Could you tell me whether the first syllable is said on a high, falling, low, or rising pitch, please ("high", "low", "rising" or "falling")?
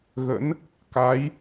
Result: rising